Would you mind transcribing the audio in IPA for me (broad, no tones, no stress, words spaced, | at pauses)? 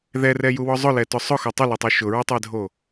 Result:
ðɛrɛjuwɔ zˤʊlɛtʊ sˤʊxo tˤʊlɛtˤo ʃʊɹʊtˤɛdʱo